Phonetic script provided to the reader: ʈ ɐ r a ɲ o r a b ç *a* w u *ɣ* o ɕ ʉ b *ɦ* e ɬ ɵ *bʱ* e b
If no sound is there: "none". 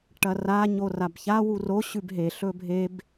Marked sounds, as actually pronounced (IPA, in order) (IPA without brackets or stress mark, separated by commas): a, r, ɦ, bʱ